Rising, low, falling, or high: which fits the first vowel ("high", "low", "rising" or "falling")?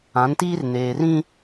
rising